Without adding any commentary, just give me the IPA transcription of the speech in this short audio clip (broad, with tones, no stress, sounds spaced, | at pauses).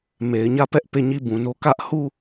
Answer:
m e˨ ɪ̯ ɲ ä˦˨ p ɛ˦ ʔ p e˦˨ ɲ i˦˨ b ũ˨ n o˦ k ä˦ ʔ h u˦˨